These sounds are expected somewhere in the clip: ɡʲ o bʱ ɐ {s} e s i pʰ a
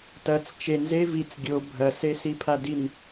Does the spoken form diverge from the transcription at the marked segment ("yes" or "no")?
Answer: no